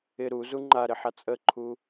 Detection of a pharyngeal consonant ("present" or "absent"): present